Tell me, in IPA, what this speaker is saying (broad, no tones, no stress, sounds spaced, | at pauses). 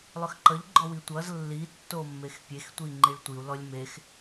lˠ ʏ x ǃ ʌ ʎ ɡ͡ǃ ɔ w i tʷ ʌ z lː i tː o mː e x pʲ e x tʷ i ŋ͡ǃ i ɭ tʷ i u̯ l ɔ lʲ m e x